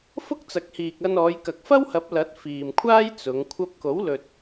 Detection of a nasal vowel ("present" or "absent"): absent